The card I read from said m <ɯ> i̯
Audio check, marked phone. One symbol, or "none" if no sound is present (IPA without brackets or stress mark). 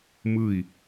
ɯ